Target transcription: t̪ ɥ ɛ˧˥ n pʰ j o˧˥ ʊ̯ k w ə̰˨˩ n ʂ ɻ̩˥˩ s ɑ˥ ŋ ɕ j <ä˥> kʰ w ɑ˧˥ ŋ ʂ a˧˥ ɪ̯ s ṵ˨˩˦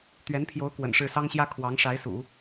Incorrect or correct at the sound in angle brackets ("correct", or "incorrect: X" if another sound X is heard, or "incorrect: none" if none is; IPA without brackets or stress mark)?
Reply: correct